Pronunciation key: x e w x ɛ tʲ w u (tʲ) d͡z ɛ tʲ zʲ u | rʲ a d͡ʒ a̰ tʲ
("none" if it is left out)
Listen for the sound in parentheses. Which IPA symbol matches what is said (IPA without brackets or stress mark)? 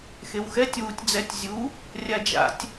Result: tʲ